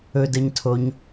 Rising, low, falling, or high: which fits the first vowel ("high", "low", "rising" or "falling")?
low